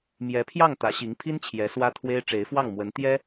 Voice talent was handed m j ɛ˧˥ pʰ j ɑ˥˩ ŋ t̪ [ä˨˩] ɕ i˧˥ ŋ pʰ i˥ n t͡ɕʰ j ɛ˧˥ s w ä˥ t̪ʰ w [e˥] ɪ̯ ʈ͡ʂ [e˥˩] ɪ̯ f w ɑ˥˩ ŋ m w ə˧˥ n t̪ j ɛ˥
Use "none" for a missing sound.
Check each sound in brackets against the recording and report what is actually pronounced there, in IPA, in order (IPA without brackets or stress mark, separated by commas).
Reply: ä˧˥, e˥, e˧˥